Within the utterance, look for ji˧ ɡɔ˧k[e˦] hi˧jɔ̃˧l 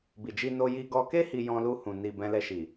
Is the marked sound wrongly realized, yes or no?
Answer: no